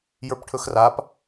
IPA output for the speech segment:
j ə˞ p ʈʰ ɵ x r a p

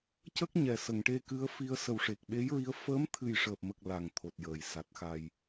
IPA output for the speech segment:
c ə˦˥ k̚ ɲ ɛ˨˩ s ə˨˩˨ ŋ ʈ e˧ k ɨ˧˥ ə̯ f i˧ ə̯ s ə˨˩ w ʂ e˨˩ k̚ ɓ e˧˥ j ɹ i˧˥ ə̯ f əː˧˥ m t̪ʰ ɨ˨˩ j ʂ əː˨˩ p̚ m ə˨˩ k̚ l a˨˩ ŋ t̪ʰ o˨˩ t̚ j əː˨˩˨ j s a˨˩ t̚ x a˨˩ j

